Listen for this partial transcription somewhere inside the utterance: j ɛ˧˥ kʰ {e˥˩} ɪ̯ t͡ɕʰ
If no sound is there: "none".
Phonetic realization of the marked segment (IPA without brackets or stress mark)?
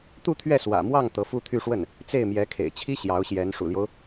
ḛ˨˩